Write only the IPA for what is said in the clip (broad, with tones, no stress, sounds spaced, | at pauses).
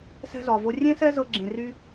s ɛ̤˧ z ɒ˨ v o˧ rʲ ẽ˦ s ɛ˦ z ɤ˧ ɡ͡ǁ ẽ˨ r y˧